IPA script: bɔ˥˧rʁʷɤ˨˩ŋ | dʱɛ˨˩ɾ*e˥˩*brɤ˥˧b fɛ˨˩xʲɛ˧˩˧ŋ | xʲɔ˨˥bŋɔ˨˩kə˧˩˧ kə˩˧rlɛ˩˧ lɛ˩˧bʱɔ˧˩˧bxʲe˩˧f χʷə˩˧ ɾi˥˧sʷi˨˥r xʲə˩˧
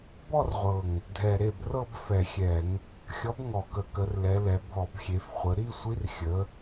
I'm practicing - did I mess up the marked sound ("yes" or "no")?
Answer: no